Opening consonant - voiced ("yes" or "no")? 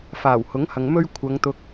no